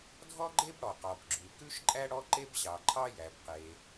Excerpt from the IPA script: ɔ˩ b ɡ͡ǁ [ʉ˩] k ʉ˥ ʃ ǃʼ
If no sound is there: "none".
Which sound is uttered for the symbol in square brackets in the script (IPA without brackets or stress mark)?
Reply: ʉ˩